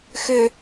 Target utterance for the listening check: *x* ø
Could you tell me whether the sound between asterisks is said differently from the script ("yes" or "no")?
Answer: no